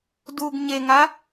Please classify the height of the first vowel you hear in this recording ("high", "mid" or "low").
high